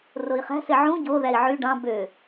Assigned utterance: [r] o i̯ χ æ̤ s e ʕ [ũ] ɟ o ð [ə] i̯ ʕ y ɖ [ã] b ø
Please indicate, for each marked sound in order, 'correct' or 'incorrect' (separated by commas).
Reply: correct, correct, incorrect, incorrect